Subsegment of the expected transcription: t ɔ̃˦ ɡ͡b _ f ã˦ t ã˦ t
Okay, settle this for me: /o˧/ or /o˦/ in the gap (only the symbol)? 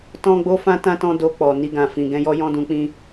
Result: o˦